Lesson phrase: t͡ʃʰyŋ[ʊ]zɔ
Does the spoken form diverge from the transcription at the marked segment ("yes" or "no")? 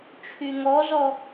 yes